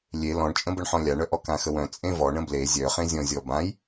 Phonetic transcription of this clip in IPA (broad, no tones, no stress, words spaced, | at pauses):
lʲe lɔ̃ɳt͡ʃʼə̃bəɳħɔ̃ lʲaɳœʔɔ kãxəwœ̃ t͡sʼẽvɔ ɳə̃ble zʲœχẽzʲɔ̃zʲɔ bãj